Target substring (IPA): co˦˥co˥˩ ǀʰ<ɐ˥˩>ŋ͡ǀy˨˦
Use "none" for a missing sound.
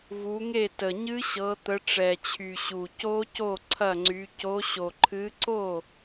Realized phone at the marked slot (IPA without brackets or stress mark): ɐ˥˩